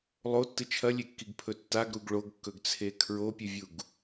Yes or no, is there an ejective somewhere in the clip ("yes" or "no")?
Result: no